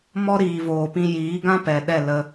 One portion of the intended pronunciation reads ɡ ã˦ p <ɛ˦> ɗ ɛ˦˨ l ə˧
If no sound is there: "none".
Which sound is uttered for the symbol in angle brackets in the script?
ɛ˨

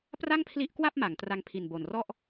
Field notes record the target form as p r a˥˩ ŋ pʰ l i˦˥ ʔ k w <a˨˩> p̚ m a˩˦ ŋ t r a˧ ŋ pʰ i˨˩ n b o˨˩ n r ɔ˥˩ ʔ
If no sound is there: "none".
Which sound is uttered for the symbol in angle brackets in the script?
a˥˩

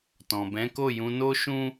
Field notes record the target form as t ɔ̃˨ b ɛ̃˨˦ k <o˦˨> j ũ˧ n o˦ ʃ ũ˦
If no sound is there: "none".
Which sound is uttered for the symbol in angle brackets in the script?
o˦˨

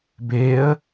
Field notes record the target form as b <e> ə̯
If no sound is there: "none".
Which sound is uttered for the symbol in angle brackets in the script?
e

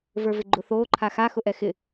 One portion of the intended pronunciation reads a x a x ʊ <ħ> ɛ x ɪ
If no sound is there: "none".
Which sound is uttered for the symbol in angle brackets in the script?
ʔ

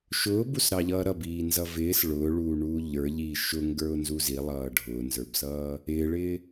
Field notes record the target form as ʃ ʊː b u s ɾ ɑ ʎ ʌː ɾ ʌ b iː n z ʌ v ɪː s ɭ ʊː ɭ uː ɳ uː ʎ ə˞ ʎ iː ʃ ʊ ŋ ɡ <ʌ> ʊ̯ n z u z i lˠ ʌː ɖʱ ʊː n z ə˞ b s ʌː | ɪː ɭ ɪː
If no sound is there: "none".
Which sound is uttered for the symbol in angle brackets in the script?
ə˞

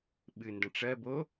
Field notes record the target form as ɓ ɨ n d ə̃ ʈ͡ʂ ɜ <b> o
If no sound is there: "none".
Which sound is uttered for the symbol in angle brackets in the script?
b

